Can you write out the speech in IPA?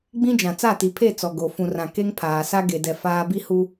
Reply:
ɡ͡b ĩ˦ d͡ʒ ã˨ t͡s a˦˨ t i˨ pʰ e˦˨ t͡s ɔ˨ ɡ o˨ f ũ˨ r ã˨ k e˦ ŋ pʰ aː˨ s a˦ ɡ e˨ d ɛ˨ f aː˦ b i˦ h u˦

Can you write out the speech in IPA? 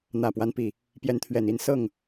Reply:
n̪ ä˨˩ p w a˦ n p i˨˩ | p j ɛ˨˦ n t̪ʰ ɥ ɛ˨˩ n i˥˨ n s ɤ˥˨ ŋ

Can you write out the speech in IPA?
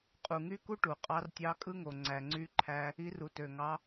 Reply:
qʼ u˩ ŋ y˥ k u˥ ʈ u˩ qʼ ɑ˧˥ r tʲ ɑ˧˥ kʼ ɯ˥ ŋ o˩ ŋ͡ǀ æ˩ ŋ͡ǀ y˧ ǃʰ æ˧ | i˧˥ r u˩ t ø˩ ŋ ɑ˧˥

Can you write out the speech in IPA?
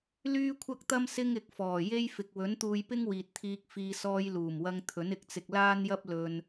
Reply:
l yː˥ kʷʰ ɐ˥ k̚ t̪ ɐ˥ m s ɪ˥ ŋ ɪ˨ k̚ f ɔː˨˩ j e˥ j f ɪ˨ k̚ w ɵ˨˥ n t̪ uː˧ j p ɪ˥ ŋ w iː˨ t̚ t̪ʰ iː˧ k̚ f iː˧ s ɔː˧ j l uː˨˩ m w ɐ˧ ŋ t̪ʰ ɵ˨˥ n ɪ˨˥ k̚ t͡s ɪ˧ k̚ l aː˥ n j ɐ˥ p̚ l ɵ˧ n

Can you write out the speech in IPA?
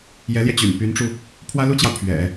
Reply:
j ɛ˧˥ l j ɛ˧ t͡ɕ y̰˨˩ n p y˧˥ n ʈ͡ʂ u˧ | pʰ w ä˥ l u˥ t͡ɕ j ɑ˨ ʊ̯ pʰ ɥ ɛ̰˨˩˦

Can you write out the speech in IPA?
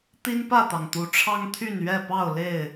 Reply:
t̪ i˦ n p ä˥˨ t̪ ɑ˩ ŋ t̪ u˨˦ ʈ͡ʂʰ ɑ˦ ŋ t̪ʰ y˥˨ n ɥ ɛ˥˨ p ɑ˥˨ ʊ̯ l e˥˨ ɪ̯

